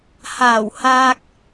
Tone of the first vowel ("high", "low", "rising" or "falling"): low